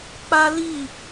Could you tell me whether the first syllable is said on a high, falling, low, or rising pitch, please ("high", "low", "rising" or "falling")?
high